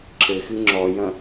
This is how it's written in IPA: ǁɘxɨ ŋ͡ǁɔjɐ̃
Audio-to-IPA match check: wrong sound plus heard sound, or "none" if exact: none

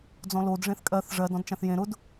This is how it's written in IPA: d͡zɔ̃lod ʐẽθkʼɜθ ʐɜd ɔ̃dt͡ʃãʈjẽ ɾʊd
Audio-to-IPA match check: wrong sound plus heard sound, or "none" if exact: ʈ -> θ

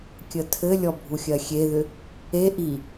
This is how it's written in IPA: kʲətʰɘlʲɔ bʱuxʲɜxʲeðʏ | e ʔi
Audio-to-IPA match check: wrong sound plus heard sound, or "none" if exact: none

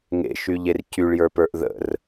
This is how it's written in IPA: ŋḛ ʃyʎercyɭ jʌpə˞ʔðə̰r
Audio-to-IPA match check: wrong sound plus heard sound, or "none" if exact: ʌ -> ə˞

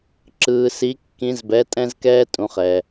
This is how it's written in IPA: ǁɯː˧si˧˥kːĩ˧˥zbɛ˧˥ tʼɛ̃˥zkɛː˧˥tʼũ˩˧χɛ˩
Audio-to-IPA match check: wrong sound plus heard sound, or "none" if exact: ɛː˧˥ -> ɛː˥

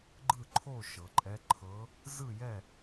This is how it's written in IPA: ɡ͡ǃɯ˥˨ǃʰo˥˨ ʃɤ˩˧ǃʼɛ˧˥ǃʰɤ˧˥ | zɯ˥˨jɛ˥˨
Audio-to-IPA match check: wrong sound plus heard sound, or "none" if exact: none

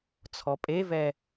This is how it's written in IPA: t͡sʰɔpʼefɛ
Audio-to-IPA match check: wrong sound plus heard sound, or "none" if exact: f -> v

